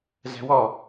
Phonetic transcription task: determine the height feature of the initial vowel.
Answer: low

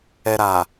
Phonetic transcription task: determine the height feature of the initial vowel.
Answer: mid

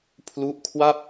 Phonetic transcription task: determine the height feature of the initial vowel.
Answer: high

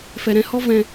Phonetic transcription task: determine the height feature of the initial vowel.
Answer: mid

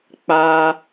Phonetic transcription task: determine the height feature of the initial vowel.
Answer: low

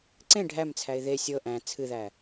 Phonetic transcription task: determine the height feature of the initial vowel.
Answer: mid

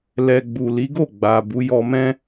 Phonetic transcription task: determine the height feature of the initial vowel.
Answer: mid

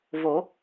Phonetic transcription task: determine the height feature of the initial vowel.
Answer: mid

